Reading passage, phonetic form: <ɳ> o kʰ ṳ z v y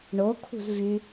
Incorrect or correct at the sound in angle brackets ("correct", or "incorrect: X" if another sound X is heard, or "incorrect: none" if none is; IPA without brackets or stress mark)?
correct